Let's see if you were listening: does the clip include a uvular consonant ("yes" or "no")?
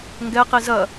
yes